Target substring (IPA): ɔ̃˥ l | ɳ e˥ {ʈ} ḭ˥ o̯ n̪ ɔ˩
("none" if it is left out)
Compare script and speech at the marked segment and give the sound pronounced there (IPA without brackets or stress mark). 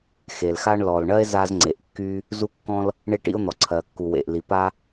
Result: ʈ